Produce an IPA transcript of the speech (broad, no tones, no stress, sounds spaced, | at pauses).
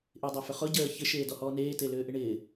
ʔ ɪ dˤ o f ʏ χ ʊ ɟ əː ç ɪ ʃ eː d ɔ h ɔː n eː t e l ʏː ʔ ɪ ɳ ɪː